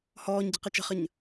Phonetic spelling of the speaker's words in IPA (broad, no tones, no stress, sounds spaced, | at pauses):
h ɔː ɲ ɟ ə̤ q ɘ t͡ʃ ə̤ χ ə ɲ